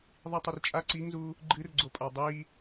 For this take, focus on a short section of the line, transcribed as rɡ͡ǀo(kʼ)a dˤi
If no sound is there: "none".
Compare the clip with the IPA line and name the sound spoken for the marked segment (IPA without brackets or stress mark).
pʼ